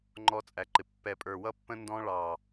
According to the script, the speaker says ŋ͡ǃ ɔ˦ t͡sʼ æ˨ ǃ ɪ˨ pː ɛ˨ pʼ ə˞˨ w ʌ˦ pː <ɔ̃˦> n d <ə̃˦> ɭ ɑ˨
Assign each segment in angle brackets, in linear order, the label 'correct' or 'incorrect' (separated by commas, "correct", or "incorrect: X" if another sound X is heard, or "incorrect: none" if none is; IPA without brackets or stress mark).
incorrect: ə̃˦, incorrect: ɔ̃˦